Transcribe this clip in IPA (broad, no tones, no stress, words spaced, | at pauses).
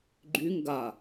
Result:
ɡ͡ǃyŋ ɡa